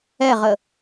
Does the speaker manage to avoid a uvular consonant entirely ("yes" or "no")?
no